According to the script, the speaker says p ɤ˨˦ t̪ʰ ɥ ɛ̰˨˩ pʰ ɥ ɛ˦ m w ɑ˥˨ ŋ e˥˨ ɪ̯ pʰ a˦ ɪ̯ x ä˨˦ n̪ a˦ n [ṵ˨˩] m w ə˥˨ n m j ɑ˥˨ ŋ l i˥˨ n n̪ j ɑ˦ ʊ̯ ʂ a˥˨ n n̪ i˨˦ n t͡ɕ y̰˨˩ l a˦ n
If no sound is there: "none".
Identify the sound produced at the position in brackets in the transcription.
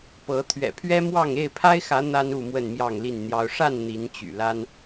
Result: u˥˨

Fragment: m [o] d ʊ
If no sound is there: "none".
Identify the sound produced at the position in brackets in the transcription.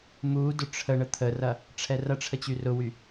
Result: u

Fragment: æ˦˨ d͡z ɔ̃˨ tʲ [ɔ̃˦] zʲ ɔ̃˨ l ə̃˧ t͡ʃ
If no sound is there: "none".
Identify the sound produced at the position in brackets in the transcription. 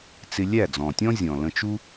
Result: ɔ̃˦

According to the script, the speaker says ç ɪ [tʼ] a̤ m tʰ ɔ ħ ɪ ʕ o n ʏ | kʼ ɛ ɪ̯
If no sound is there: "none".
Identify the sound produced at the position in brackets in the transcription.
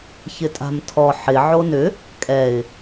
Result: tʼ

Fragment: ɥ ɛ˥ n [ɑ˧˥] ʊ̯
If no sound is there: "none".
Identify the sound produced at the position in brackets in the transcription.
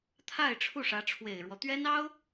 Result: ɑ˥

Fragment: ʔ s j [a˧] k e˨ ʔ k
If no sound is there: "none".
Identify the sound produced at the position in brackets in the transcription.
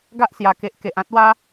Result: a˨˩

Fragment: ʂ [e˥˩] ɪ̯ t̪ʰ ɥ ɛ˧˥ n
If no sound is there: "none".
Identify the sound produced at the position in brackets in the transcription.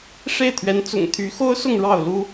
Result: e˥˩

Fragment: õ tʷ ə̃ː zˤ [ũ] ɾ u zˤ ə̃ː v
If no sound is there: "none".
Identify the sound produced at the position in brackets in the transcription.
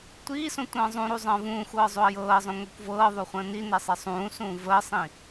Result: ũ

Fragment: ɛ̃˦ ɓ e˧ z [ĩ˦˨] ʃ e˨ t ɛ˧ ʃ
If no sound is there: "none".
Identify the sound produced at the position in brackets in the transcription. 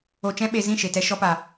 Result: ĩ˦˨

